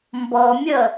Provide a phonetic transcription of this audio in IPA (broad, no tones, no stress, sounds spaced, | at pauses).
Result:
m b ɔ mʲ ʌ